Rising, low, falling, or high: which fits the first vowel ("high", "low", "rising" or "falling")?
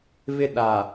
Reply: high